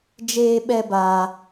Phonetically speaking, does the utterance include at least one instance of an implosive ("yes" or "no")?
yes